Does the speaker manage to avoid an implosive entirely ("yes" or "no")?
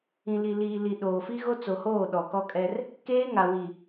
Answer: no